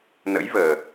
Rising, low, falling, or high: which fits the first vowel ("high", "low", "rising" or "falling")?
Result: rising